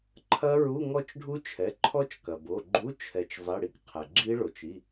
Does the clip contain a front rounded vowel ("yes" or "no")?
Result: no